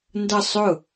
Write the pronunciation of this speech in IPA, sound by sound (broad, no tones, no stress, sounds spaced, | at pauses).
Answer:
n d ʌ sˤ ʊ